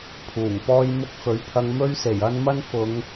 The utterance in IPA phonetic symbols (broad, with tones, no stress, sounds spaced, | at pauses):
pʰ uː˨˩ ŋ p ɔː˥ j m ʊ˥ k̚ f ɵ˨˥ ɥ pʰ ɐ˧ ŋ m ɵ˥ ɥ s e˨˩ j ɐ˥ n m ɐ˥ n f ʊ˨˧ ŋ